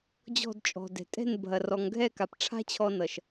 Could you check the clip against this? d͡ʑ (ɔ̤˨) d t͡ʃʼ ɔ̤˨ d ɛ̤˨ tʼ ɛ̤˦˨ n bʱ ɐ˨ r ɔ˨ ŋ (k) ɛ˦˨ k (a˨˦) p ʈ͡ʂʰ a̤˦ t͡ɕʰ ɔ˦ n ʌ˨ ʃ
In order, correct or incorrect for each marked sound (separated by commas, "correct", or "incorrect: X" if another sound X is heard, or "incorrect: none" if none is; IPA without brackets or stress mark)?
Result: incorrect: ɔ̤˦˨, incorrect: ɡʱ, incorrect: a˨